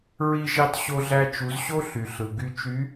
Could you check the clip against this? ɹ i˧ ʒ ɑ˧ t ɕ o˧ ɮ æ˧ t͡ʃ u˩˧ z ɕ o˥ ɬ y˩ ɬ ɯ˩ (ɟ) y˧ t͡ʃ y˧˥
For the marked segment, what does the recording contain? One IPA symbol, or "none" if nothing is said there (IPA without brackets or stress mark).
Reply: ɡ